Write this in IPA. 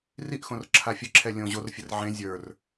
r i ʔ x õ r ǁʰ a fʲ ə ǁʰ ɛ lʲ õ ʑ o r fʲ ə r ʕ ẽ zʲ ə˞ r

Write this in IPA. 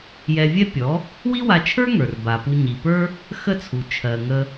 j ɛ˧ vʲ ɛ˥ pʲ ɔ˩˥ | w i˥ w a˧ t͡ʃʰ ə˞˥ ŋ ə˞˩ r b a˩ p u˧ ɲ i˩ p ə˞˥ | x ə˥˩ t͡sʰ u˩ t͡ʃʰ ɜ˩ ŋ ə˧

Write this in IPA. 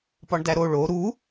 p ɒ ɳ d æ ɾ o ɭ o ɾ u

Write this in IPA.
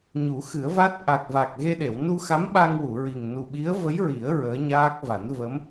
ɲ u˨˩˦ x ɨ˨˩˦ ə̯ v aː˦˥ t̚ ʔ a˨˩ k̚ v aː˨˩ k̚ ɣ e˧ ɗ e˨˩˨ w n u˧ x a˧˥ m ɓ a˧ ŋ w u˨˩˨ ɹ i˨˩ ŋ n u˨˩ ɓ i˧˥ ə̯ v ə˧˥ j ɹ i˨˩˦ ə̯ ɹ əː˧˥ ɲ aː˦˥ k̚ v a˨˩˦ n v ə˧˥ m

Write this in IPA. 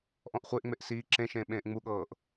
ʔ ɔ̃ ʔ χʷ e ʔ ŋ͡m e ʔ s iː ǁ ẽ ʃ ẽː ɓ ẽː ʔ ŋ͡m u ɠ ɤː ʔ

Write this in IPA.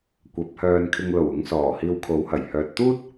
kʷ ɐ˨˥ p̚ h œː˧ n kʰ ɪ˧ ŋ l o˨˩ w ʊ˨˧ ŋ s ɔː˨˩ h iː˧ w kʰ o˨˥ w h ɐ˨˩ j h œː˨ t̚ t̪ uː˥ t̚

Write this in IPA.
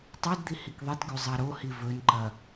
tˤ i d d̪ i h i k ðˤ i t ɡ ʉ zˤ a ɾ o h i v ɵ n ǃ ɐ

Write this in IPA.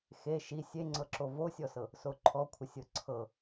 x e ʃ i sʲ e ŋ͡ǀ ɤ ǁ o v o sʲ ɔ s ɤ | s o ǃʰ ɔ kʷʰ ə sʲ ɤ ǀʰ ɤ

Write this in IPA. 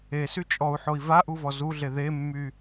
e s y t͡ʃʼ ɔ u̯ ħ o i̯ v a ʔ u v ɔ z u ɮ e ð e mː y

